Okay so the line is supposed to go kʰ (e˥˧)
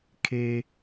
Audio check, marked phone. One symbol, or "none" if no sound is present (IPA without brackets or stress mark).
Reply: e˧